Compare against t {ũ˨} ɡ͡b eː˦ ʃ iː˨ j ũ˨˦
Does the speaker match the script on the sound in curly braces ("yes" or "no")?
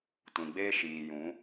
yes